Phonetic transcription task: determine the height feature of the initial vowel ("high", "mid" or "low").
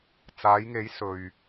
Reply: low